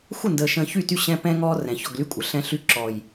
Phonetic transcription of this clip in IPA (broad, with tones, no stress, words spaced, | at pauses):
xʷə˦˨ndəː˨ ʃə̃ː˨çy˦˨ty˦˨ ɕɛ̃˦ pɛ̃˦ŋɔː˦rɛ̃˨çɔ˦˨ɡ ly˦kʷʼə˨ ɬɛ̃˦ɬy˦ ǁɔ˨j